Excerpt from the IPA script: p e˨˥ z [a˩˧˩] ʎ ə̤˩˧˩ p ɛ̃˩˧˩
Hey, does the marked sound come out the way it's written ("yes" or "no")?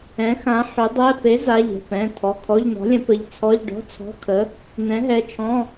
yes